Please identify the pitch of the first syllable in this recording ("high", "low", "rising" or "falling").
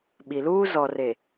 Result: low